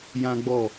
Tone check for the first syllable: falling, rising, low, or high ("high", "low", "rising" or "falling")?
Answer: high